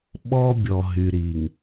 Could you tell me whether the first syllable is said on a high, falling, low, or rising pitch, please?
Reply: high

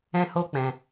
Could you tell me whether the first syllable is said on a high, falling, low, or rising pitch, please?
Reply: high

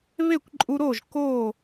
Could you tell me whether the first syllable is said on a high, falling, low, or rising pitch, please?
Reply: falling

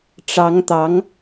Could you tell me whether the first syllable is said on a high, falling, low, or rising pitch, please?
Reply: rising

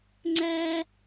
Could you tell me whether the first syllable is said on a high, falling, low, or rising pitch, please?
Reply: high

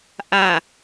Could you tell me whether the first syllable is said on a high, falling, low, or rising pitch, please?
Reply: low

